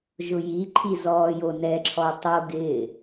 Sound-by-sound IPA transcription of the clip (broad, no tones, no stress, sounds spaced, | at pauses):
ʒ ʊ j i ǃʰ i z ɔː j o n ɛ ǁʰ ɔ tˤ o ɡ ɪː